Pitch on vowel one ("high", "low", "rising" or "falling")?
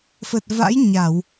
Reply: low